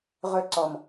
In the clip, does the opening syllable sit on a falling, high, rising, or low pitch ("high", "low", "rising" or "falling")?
high